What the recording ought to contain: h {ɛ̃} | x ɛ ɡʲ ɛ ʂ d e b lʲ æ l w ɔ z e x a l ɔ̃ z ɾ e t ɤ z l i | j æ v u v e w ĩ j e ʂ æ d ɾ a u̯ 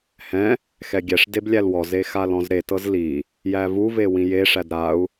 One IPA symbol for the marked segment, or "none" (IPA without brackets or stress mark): ɛ̃